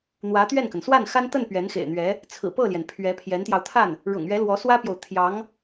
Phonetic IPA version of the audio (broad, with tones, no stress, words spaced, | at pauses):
n̪wä˧˥t̪ɥɛ˥˩nkə˩n swa˥˩nxa˥nt̪ə˥˩n pɥɛ˧˥nxḛ˨˩ɪ̯n̪ɥɛ˧˥ | t͡sʰɹ̩˨˩pɤ˥˩ljɛ˩n pʰɥɛ˧˥pʰjɛ˧˥nt̪jɑ˧ʊ̯ t̪ʰa˥˩n | ɻʊ̰˨˩ŋɥɛ˧˥ lwɔ˧˥swä˥pjo˨ʊ̯ t̪ʰjɑ˧˥ŋ